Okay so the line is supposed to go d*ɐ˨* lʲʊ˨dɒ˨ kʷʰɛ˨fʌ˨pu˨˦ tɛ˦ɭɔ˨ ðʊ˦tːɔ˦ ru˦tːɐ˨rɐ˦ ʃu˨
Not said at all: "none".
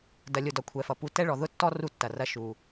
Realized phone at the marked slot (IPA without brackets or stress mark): ɐ˨